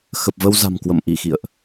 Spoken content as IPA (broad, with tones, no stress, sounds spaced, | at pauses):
x ə˨˩ p̚ v ə˧ w z a̤˨˩ m k w ə̰˧˨ m ʔ i˧˩ x ḭ˧˨ ə̯ ʔ